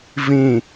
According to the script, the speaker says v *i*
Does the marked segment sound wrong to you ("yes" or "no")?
yes